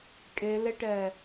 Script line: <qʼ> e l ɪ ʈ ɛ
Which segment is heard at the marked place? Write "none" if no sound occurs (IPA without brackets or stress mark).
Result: kʼ